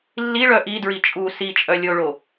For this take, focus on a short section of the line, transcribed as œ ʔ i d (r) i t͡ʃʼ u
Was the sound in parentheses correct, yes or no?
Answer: no